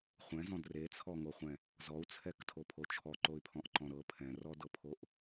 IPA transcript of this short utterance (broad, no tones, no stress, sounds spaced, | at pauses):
χʷ ɛ̃ z ɔ̃ d r e t͡sʰ ɔ ŋ o χʷ ɛ̃ | z ɔ u̯ t͡sʰ ɛ k tʰ o pʰ o t͡ʃʰ ɔ ǃ o y̯ pʰ ɔ̃ ʔ ǃ ɔ̃ ɾ ɤ pʰ ɛ̃ r ɔ d ɤ pʰ o ʔ